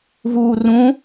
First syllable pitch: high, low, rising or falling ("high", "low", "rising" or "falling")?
low